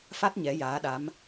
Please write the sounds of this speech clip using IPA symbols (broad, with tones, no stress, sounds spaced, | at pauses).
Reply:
f a˦˥ t̚ ɲ ɛ˧˥ j aː˧˥ ɗ a˧˥ m